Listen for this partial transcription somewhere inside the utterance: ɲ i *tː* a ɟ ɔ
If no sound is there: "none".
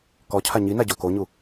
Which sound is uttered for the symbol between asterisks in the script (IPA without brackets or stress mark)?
n